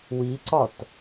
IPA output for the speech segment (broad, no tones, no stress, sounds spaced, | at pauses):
w i ǀ ɒ t